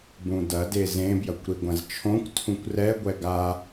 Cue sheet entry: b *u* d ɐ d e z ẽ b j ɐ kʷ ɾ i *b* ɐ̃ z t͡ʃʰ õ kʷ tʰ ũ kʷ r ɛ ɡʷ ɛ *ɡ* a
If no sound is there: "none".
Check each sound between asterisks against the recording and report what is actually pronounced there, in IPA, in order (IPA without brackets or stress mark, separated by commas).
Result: ũ, ɡʷ, ɡ